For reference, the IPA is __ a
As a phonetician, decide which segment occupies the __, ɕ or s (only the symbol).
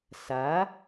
s